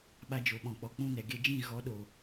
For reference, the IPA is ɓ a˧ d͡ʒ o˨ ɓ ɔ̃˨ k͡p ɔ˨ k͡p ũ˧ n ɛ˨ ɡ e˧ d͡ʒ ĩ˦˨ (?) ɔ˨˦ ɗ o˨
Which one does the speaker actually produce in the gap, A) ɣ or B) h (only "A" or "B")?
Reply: A